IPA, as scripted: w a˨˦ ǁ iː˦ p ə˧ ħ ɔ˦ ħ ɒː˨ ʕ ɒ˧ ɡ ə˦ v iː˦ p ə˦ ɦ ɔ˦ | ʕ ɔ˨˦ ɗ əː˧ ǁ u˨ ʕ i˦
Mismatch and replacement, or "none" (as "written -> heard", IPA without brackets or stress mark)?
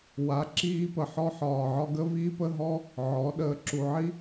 none